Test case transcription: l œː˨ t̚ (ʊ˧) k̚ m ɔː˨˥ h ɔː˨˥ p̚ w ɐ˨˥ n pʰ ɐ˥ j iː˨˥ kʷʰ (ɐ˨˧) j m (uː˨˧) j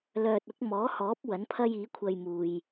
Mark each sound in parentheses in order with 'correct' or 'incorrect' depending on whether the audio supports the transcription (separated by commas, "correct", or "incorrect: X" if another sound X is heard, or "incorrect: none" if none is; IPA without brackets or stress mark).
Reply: incorrect: ʊ˨˥, incorrect: ɐ˧, incorrect: uː˨